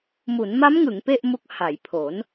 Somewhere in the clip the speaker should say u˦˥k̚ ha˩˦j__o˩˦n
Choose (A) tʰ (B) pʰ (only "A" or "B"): B